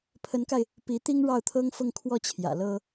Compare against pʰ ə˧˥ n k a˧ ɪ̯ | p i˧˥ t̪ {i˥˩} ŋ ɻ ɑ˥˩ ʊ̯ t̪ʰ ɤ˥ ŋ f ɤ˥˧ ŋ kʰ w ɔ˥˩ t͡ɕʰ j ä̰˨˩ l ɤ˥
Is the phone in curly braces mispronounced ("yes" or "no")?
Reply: yes